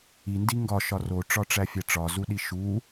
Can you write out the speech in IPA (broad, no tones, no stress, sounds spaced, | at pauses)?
i n d i ŋ ɡ ɒ ʃ ɒ r o ʈ͡ʂ ɒ ʈ͡ʂ æ fʲ æ ʈ͡ʂ ɒ z u ɗ i ʃ u